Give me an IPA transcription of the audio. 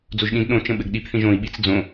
d͡z o ʒ ɗ ĩ d ɗ õ t͡ʃ ə̃ ɓ ɘ ɡ ɗ i p θ ĩ ʒ õ i̯ ɓ i t͡s d͡z õ

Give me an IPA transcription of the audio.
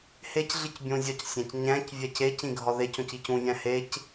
h e c ɮ i c bʲ õ zʲ ɒ c sʲ æ̃ c ɲ æ̃ c vʲ æ c e c ĩ ɡʱ ɒ ð e c õ c i c ũ vʲ æ̃ h e c

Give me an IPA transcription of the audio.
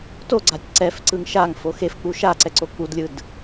t o ɡ͡ǀ a tʲ ǀ ɛ f ǀ ɯ ŋ ʃ a ŋ f o x e f k͡p u ʃ a ǀ ɛ ǀ o k͡p u d lʲ ɯ d

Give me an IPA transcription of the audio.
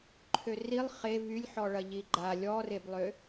ǃʰ ø r i lˠ χ e v y lʲ ħ ɔ ɭ ɐ ʎ i ɡ͡ǃ a lʲ ɔ r e b lˠ ø

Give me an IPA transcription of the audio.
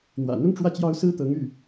n̪ w ä̰˨˩ n̪ ʊ˥ ŋ ʈ͡ʂ w ä˥˩ t͡ɕ j ɑ˥ ʊ̯ s ɹ̩˥ t̪ ɤ˧˥ ŋ y˥˩

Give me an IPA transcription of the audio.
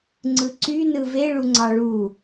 ŋ͡ǀ ɯ ǀ y n ɯ v e ɭ u ŋ͡ǀ ɑ ɭ u

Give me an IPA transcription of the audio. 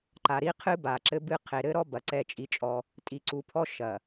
ǃ a˨ ɾ i˦ qʰ ɨ˦ b a˨ ǁ ɘ˦ b ɨ˦ qʰ e˨ ɾ ɘ˦ ɾ ɔ˦ b ɐ˨ ǀ ɛ˦˨ t͡ʃʼ i˦ t͡ʃʼ ɔ˦ | tʼ i˨ ǀ u˨ pʰ ɔ˦ ʃ ɐ˨

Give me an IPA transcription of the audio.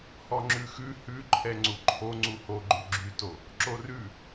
h ɔ ŋ͡ǁ ʉ x ʉ h ʉ ǃʰ ɛ ŋ͡ǀ u ǃʰ o ŋ͡ǀ u h o ɡ͡ǃ ʉ ɡ͡ǁ y t o | ǁ o r ʉ

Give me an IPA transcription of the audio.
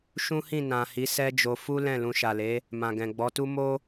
ʃ ũ˦ h ĩ˦˨ n ã˨ h i˨˦ s ɛ˦ d͡ʒ o˧ f u˦ l ɛ̃˦˨ l ũ˧ ʃ a˨ l e˨˦ | m ã˨ ɡ ɛ̃˨ ɡ͡b ɔ˨˦ t u˦ m o˦

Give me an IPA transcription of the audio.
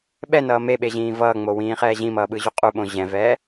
ɓ ɛ n ʌː m e ɓ e ʑ ĩː v ʌː ŋ͡m o w ĩː χ ɛː ʑ ĩ m ʌː ɓ ɯ ʑ u qʼ u ɓ õ ʑ ɛ̃ v ɛː

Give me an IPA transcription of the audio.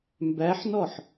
m b æ ħ n ɔ ħ

